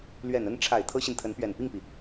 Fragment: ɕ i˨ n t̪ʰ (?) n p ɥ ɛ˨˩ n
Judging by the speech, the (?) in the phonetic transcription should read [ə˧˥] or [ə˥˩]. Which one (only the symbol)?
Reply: ə˧˥